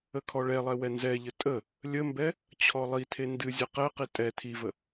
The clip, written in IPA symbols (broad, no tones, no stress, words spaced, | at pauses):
əkʰɔɭɛlˠɛ wɛnzɛʎə tʼə | lʲəmbɛ | t͡ɕʰɔlˠitʰe ndɨ zʲɨqɛqi tʼɛ tʰivə